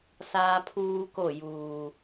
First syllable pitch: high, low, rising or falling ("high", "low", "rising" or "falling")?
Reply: high